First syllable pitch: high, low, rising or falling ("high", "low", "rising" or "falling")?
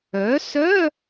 rising